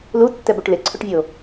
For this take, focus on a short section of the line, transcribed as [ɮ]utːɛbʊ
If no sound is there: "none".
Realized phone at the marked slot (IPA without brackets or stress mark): l